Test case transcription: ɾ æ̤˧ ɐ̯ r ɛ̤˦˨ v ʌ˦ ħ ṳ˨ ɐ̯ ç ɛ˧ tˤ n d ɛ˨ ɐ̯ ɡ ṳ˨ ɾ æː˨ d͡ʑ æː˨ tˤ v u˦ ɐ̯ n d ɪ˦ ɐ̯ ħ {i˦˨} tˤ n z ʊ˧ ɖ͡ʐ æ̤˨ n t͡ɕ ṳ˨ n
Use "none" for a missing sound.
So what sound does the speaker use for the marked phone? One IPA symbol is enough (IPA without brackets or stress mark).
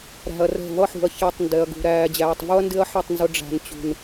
i˦˨